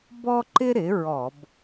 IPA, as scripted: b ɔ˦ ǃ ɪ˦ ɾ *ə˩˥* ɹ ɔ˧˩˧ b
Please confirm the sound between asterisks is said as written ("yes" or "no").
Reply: no